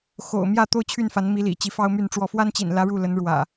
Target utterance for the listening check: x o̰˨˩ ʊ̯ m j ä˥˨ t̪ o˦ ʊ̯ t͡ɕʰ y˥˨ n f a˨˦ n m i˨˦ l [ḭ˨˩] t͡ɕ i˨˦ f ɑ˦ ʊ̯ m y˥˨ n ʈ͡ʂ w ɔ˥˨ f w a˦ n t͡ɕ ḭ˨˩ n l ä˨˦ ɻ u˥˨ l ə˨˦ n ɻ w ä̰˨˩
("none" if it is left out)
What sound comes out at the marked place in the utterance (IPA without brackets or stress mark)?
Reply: ḭ˨˩